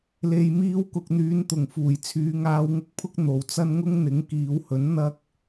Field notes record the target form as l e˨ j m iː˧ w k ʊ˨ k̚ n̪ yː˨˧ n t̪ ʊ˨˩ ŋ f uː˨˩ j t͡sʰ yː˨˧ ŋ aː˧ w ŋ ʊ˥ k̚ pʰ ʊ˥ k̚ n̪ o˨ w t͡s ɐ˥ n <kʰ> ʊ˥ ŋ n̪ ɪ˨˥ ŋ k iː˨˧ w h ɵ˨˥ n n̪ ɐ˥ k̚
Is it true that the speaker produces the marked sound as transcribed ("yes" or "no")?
no